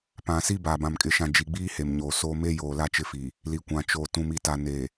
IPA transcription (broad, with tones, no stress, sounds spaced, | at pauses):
p ã˨ s i˦ b aː˨ b ã˨ m kʼ ɪ˨ ʃ ã˨ d͡ʒ i˨ ɡ͡b iː˦ h e˨ m ɲ oː˨ s oː˦ m e˦ j oː˨ l a˦ t͡ʃ ɪ˦˨ f i˨ | l i˨ kʷ ã˨ t͡ʃ oː˨ t ũ˨ m i˨ t a˨ n e˨